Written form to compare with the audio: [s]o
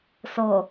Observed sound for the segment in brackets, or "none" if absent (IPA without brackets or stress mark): s